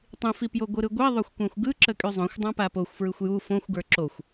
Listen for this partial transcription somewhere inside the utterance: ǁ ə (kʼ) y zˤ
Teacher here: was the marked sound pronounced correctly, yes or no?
yes